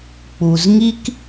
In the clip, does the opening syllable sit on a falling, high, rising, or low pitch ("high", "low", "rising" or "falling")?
low